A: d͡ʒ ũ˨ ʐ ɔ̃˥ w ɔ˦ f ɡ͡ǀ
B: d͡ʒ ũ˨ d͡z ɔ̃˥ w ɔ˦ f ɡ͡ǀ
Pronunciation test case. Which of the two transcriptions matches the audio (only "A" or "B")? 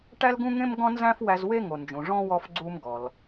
A